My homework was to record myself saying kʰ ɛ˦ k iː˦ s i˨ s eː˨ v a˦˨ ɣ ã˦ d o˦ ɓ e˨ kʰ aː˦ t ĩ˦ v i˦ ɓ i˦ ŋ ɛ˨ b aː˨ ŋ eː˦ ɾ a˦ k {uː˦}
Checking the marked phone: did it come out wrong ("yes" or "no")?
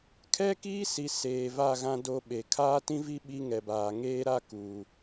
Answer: yes